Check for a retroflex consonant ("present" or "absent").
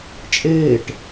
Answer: present